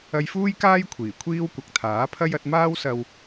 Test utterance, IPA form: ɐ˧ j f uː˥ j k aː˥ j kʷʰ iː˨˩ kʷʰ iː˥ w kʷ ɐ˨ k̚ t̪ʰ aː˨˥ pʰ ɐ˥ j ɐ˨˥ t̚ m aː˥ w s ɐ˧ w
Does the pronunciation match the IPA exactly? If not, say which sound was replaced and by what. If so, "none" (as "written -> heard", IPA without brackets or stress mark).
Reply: none